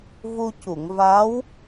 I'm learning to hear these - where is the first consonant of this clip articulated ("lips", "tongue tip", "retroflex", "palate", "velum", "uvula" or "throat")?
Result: lips